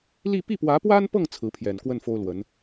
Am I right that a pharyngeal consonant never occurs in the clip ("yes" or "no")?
yes